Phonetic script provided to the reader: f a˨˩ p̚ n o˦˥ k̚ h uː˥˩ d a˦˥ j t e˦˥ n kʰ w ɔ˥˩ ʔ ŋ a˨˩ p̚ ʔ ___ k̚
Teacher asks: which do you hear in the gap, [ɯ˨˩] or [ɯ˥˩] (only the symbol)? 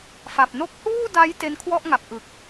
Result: ɯ˨˩